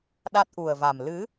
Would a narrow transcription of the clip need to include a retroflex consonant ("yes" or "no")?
no